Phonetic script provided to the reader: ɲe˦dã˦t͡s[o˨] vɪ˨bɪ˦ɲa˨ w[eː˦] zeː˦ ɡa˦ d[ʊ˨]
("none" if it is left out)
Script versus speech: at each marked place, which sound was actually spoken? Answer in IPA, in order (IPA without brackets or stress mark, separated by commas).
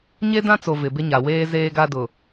o˨, eː˦, ʊ˨